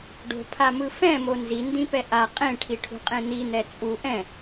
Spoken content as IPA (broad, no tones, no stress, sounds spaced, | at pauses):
ɖ o̤ pʰ a m ɯ f ɛ̃ m o n z i n d ĩ p ɛ ʔ a qʼ ẽ ʈʰ i ʈʰ ṳ qʼ ẽ n̪ i n̪ ɛ t͡sʼ u ʔ ɛ̃